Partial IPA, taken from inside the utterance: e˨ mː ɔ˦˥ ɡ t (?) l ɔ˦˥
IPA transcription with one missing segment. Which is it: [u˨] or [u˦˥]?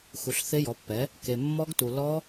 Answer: u˨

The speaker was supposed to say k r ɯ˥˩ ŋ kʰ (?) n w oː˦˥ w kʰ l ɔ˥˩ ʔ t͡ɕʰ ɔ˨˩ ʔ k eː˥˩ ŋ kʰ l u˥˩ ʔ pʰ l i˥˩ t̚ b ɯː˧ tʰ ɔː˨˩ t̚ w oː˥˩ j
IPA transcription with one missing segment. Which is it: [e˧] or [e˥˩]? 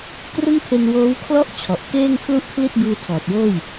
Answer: e˧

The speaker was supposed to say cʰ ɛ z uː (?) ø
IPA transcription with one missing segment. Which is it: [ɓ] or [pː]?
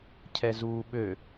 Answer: ɓ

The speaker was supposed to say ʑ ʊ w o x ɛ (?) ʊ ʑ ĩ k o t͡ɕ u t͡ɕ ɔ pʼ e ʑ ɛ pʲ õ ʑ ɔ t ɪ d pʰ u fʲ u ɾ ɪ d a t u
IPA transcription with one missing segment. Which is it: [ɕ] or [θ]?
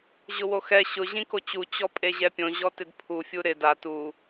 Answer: ɕ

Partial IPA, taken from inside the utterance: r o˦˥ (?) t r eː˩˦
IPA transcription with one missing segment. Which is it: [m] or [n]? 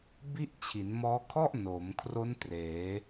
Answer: n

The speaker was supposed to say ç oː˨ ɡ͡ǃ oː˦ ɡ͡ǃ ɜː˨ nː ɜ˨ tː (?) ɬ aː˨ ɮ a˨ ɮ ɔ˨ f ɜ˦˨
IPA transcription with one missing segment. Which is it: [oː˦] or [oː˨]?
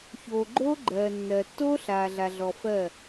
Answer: oː˦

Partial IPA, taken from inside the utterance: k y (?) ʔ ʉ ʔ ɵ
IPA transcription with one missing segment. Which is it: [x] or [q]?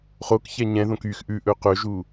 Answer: x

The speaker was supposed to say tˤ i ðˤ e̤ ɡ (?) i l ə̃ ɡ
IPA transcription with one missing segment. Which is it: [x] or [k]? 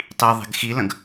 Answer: x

